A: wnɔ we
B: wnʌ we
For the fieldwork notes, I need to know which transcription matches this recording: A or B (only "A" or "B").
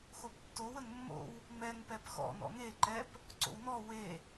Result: A